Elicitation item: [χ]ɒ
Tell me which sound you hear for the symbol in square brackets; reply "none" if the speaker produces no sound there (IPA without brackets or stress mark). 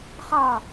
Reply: χ